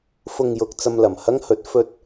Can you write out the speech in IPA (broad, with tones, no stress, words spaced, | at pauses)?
fʊ˨ŋjʊ˨k̚ t͡sɐ˧mlɐ˨˩mhɐ˥ŋhɵ˨˥t̚ fɵ˧t̚